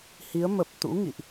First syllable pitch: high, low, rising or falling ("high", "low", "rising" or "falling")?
rising